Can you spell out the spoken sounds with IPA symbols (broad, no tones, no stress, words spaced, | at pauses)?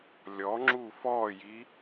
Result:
lʲɔŋ͡ǁu fɔji